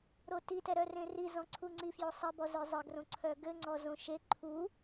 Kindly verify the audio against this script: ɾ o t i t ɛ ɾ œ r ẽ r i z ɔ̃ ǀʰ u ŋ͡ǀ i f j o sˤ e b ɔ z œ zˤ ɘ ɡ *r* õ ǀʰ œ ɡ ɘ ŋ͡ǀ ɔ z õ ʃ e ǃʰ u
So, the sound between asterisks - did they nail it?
yes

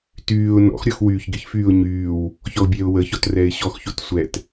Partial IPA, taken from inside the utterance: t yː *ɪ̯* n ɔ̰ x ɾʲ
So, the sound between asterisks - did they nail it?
no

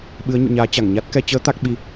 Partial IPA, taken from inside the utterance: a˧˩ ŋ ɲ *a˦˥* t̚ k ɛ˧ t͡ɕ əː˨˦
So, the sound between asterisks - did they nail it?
yes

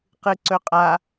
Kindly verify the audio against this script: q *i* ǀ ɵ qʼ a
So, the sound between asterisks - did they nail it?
no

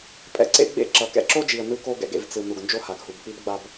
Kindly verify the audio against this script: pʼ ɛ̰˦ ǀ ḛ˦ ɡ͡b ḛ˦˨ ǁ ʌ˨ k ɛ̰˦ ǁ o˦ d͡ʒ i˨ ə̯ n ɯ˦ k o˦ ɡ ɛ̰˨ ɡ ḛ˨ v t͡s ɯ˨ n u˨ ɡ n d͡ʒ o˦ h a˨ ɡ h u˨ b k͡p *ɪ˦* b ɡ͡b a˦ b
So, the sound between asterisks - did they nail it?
no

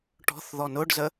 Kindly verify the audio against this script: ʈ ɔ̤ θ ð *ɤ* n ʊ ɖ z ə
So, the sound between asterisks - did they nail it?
no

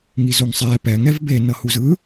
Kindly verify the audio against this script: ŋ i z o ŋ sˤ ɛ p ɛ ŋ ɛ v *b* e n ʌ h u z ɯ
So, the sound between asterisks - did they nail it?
yes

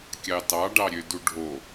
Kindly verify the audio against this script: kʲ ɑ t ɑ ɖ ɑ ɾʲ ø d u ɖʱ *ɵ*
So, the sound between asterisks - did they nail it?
no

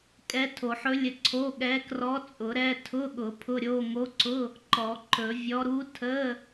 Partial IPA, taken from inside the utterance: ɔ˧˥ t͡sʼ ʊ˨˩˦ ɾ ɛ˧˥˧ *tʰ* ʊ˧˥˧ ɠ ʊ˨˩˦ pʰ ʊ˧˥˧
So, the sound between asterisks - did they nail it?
yes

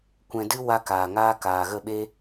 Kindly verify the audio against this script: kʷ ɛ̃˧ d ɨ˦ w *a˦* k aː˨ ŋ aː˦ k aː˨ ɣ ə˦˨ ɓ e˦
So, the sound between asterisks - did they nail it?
yes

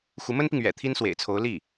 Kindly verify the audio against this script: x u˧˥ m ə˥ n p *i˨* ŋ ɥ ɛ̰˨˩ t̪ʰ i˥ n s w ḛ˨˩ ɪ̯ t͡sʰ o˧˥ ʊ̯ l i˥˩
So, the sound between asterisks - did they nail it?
yes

